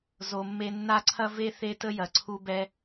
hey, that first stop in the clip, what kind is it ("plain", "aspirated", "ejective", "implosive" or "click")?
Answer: click